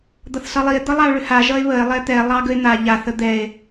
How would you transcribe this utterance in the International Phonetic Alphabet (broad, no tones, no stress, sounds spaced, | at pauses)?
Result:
d̪ ʌ θ s ʌ lˠ i e̯ d̪ ʌ lˠ a o̯ ɭ ʏ h a ʒ ʌ e̯ β ə e̯ lˠ ɛ t̪ ɛ lˠ ɑ ɡ ə e̯ n̪ a ʎ a θ ə d̪ ɛ e̯